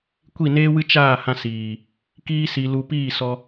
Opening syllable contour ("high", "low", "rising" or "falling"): falling